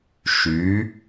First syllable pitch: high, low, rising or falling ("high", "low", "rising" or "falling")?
rising